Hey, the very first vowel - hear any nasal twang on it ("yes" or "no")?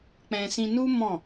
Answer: yes